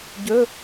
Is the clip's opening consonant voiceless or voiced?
voiced